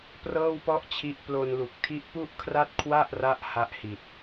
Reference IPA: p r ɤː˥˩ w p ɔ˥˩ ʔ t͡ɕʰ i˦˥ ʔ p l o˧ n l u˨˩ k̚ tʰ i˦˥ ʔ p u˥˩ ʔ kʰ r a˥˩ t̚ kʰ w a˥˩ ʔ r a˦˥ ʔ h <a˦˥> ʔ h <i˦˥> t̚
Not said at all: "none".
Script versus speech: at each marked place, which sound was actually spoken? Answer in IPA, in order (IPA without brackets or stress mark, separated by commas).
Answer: a˥˩, i˨˩